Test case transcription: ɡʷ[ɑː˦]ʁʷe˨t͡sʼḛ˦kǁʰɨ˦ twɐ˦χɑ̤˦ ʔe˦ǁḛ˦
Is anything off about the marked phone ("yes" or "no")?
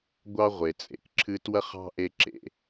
yes